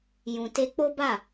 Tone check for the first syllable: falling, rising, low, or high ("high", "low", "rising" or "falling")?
low